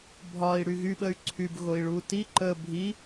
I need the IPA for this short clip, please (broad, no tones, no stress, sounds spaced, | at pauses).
bʱ ɒ i̯ ɽ y ɣ y ɓ ə y̯ ǀʰ y b ɣ o i̯ ɭ u t i ǃ ə bʱ i